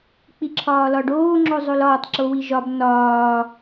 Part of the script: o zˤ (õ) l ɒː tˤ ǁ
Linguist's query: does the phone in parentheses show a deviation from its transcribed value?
yes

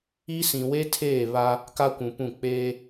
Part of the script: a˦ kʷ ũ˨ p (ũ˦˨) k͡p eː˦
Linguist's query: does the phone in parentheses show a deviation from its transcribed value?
no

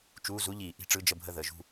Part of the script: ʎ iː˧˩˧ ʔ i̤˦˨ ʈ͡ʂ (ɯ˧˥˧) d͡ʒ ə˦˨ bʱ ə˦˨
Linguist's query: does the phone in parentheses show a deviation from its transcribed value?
no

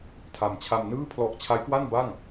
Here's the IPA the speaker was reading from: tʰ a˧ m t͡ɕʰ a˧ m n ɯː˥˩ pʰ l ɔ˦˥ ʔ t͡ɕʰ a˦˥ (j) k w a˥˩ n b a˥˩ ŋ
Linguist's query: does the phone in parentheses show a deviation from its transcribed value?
no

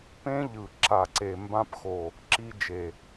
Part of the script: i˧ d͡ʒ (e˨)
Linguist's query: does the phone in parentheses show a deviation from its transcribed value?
no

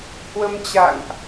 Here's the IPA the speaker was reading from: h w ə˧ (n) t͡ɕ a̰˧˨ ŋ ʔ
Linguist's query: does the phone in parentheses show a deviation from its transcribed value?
yes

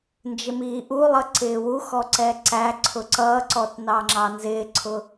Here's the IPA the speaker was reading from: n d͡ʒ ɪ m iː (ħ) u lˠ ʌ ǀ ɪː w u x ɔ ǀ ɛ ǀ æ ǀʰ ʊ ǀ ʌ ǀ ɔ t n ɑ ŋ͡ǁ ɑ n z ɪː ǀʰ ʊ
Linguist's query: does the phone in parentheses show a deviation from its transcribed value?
yes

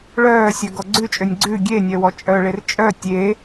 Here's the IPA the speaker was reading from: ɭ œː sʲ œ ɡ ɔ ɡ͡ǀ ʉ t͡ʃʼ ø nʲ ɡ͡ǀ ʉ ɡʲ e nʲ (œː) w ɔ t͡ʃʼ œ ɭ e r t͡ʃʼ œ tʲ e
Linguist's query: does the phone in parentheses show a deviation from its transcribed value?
yes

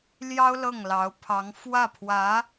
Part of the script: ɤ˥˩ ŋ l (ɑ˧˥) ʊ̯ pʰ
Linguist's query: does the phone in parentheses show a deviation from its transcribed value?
no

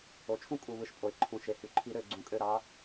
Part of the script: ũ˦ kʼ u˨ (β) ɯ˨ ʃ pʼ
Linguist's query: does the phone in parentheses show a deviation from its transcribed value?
no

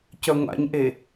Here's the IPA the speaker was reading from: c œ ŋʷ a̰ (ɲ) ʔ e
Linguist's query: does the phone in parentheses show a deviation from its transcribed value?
no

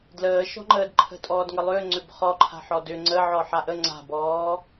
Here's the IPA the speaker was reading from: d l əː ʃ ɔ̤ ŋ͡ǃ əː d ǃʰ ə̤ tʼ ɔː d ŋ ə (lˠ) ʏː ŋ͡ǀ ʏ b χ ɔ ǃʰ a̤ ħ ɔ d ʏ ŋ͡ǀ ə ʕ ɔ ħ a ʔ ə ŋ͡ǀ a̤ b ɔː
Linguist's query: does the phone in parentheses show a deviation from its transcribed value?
no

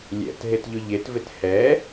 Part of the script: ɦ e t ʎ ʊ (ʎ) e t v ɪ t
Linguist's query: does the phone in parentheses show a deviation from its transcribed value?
no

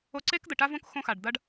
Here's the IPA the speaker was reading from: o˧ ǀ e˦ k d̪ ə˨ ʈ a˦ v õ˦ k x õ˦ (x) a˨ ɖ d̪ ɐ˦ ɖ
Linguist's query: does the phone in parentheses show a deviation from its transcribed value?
no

